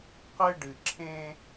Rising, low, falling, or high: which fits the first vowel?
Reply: high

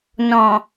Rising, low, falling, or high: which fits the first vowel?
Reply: low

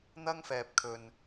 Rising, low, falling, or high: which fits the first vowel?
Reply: high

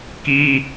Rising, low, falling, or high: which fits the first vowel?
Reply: high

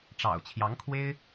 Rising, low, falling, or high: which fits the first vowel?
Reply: low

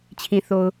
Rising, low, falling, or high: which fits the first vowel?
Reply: low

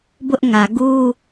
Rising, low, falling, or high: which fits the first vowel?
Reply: high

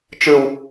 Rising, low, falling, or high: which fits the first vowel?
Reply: low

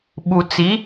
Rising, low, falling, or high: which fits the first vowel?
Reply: low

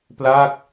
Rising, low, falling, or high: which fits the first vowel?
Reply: falling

